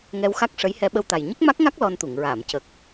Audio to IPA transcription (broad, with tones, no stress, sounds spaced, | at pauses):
ŋ ɛ˧ w x a˦˥ k̚ ʂ ə˧˥ j h ɛ˧ ɓ ə˧ w t̪ a˨˩ j ɲ ə˦˥ k̚ m a˦˥ k̚ ŋ a˦˥ k̚ l ɔ˧ n t̪ u˨˩˨ ŋ ɹ aː˨˩˨ m c ə˨˩ k̚